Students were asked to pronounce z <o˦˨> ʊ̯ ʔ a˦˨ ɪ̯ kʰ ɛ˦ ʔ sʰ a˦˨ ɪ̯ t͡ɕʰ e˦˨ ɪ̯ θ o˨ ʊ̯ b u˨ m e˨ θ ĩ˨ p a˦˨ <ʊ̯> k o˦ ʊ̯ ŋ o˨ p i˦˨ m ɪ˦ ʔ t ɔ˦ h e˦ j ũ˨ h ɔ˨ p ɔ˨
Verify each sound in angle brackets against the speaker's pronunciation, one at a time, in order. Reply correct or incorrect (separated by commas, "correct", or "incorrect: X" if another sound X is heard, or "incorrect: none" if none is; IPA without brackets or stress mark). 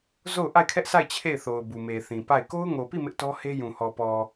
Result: correct, incorrect: ɪ̯